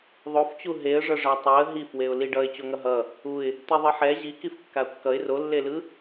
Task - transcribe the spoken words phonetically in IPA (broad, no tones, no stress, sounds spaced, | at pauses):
ðˤ o f t͡ɕ u ɦ e ə̯ ʐ ʌ ʐ a tˤ o ə̯ ɦ i f w e ʊ̯ l i ɖ ʌ ɪ̯ t͡ɕ o ŋ ʌ ɦ ʌ | u ɪ̯ | t̪ i ðˤ ɯ ħ ɛ ʑ i k i f kː a ʊ̯ kː ʌ ɪ̯ r o lː e l ɯ